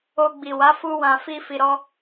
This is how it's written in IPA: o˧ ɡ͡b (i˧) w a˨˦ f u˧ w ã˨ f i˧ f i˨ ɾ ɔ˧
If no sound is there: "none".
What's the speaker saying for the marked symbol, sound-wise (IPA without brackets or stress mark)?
i˨